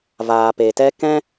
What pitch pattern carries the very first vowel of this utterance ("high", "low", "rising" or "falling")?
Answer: low